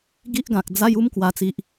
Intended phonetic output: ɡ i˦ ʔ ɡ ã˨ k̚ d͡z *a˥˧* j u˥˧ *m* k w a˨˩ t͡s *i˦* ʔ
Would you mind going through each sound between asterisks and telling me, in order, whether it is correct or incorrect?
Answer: incorrect: a˦, correct, incorrect: i˨

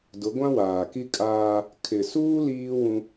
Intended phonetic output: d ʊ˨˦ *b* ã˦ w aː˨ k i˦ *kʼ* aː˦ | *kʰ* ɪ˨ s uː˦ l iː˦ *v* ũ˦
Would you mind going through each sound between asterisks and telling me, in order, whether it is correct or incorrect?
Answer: incorrect: ɡʷ, correct, correct, incorrect: w

